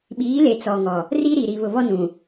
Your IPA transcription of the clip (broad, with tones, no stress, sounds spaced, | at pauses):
ɓ iː˨˦ l e˨ t͡s ɔ˨ ŋ ɔ˨ | r i˦ ɾ i˨ ɾ i˨ β ʊ˨ β ɔ˦ n ũ˨